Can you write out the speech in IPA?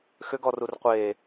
x ʏ ɡ ɔ r u r qʷ e

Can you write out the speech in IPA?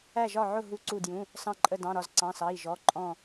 æ˧˩ ʒ ɒ˧˩ ʕ ʊ˧˩ ɦ u˧˩ ǀ u˧˩ d j ũ˩˧˩ | s ɑ̃˧˩ ǃʼ ə˧˩ d ɑ̃˩˧˩ ɾ ɒ˧˩ z ǀ ɑ̃˩˧˩ s ɑ˩˧˩ i̯ ʒ ɔ˩˧˩ ǃʼ ɔ̃˧˩

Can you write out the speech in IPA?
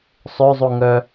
sˤ ø zˤ u ŋ œ

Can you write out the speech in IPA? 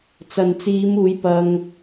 t͡s ɐ˨ n t͡s iː˨˧ m uː˨˧ j p ɐ˧ ŋ

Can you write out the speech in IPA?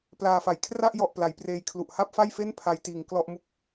p l aː˧ f a˩˦ j kʰ r a˥˩ ʔ j ɔ˨˩ ʔ p l a˩˦ j p r eː˧ j kʰ l u˨˩ ʔ h a˥˩ p̚ f a˥˩ j f e˥˩ n pʰ a˧ j t iː˨˩ ŋ k l ɔ˥˩ ʔ m u˨˩ k̚

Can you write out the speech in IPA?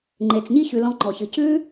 ŋ͡ǃ e˩ t͡s ɲ i˧ ç ʉ˩ l ɔ̃˧ ŋ͡ǃ ɔ˩ ç ɨ˩ c ʉ˥

